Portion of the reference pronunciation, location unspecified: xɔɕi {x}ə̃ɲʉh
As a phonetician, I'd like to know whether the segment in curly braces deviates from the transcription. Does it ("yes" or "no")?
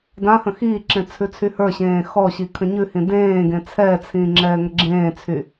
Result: yes